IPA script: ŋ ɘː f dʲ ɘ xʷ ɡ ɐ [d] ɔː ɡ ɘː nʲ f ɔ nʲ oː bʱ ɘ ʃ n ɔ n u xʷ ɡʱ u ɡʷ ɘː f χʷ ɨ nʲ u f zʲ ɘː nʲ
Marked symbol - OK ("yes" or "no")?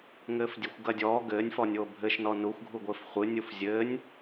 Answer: no